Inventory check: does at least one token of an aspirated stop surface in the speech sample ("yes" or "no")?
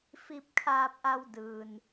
yes